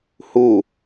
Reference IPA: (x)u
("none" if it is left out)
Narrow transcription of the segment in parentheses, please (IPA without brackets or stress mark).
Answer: h